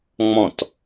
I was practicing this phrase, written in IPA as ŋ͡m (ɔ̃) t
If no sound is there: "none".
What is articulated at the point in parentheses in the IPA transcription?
ɔ̃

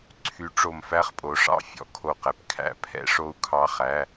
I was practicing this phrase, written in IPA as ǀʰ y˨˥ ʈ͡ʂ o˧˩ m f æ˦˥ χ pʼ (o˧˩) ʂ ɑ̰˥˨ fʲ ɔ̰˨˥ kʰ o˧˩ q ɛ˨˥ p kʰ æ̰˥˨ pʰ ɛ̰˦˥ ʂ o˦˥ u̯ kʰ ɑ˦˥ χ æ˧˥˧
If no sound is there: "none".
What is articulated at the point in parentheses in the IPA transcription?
o˨˥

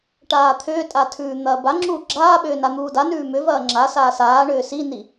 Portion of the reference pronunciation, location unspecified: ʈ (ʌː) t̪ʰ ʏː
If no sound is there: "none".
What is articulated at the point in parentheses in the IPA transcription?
aː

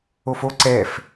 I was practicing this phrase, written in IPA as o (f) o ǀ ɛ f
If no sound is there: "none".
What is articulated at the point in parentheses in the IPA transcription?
f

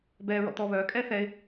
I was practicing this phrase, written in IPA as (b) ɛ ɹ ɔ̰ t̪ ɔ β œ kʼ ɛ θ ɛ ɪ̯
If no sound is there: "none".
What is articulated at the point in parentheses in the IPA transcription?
b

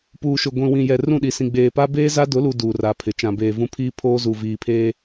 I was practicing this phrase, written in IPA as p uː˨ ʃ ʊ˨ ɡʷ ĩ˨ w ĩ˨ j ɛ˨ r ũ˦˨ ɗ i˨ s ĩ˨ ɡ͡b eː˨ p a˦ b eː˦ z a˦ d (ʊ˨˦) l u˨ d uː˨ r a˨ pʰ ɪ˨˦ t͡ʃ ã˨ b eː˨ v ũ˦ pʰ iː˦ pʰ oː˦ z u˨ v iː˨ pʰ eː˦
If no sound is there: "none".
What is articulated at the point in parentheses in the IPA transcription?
ʊ˨˦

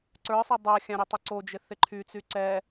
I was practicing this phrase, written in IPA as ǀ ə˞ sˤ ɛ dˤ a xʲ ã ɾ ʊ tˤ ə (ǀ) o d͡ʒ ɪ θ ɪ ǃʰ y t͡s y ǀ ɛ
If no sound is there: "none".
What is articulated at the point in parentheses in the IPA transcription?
ǀ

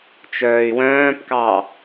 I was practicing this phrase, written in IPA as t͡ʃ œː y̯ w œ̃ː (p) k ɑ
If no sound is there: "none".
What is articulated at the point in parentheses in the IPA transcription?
p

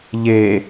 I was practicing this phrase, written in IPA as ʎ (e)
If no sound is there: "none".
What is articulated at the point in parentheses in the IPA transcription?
e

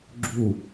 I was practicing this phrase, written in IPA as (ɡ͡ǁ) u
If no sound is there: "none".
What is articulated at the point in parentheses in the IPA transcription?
ɡ͡ǁ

